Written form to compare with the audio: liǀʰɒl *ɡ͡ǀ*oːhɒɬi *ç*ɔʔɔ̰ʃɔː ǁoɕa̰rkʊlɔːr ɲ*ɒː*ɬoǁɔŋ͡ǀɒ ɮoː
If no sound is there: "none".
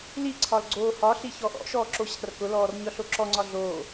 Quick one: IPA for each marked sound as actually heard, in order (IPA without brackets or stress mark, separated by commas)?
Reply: ɡ͡ǀ, ç, ɒ